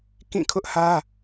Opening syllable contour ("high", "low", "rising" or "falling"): falling